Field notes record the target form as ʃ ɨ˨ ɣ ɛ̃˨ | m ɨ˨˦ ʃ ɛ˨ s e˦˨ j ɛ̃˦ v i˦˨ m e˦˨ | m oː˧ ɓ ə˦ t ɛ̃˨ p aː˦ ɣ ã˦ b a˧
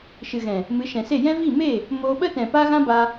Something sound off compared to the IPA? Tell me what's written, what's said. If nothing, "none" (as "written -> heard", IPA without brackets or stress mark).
ɛ˨ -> ɛ̃˨